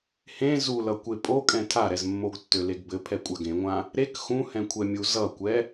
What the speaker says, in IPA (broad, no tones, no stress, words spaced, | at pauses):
hẽ zulʌ kʷepʼokʼɛ̃ tʰaɾɛzmːoɡ tːøleɡbɘ pʰɛkʷʼaɡẽŋʷã | ɾek xũhɛ̃kʷʰɛmʲu zʌkʷɛ